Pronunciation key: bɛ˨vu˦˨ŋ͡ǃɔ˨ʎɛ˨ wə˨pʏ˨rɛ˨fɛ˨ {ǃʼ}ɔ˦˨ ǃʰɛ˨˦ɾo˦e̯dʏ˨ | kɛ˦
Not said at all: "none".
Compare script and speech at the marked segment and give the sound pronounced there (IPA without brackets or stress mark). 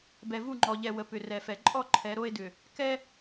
ǃʼ